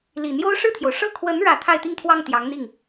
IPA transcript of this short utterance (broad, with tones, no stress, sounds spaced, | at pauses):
l i˨˩ n̪ j o˥ ʊ̯ ʂ ɻ̩˥˩ t̪ʰ j o˩ ʊ̯ ʂ ɤ˥˩ kʰ w ə˧˥ n ɻ ä˥˧ t̪ʰ a˥˧ ɪ̯ t̪ i˥˧ ŋ t̪ʰ w ɑ˥˩ ŋ t̪ j ɑ˧˥ ŋ n̪ i˥˩ ŋ